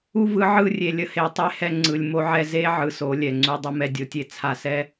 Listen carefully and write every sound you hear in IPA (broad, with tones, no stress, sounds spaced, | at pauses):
u˦ v ɯ˨˦ ʕ ɯ˦˨ rʲ e˨ lʲ ə˦ h e˨˦ tˤ e˦ h ɛ˧ ŋ͡ǀ ɯ˨ lʲ m o˧ ʕ ɛ˧ z e˦ ʕ ɯ˨ s o˨˦ lʲ ɛ˨ ŋ͡ǀ u˦ dˤ u˧ m ɛ˧ dʲ o˦ tʲ e˦ t͡sʰ a˧ s ɛ˦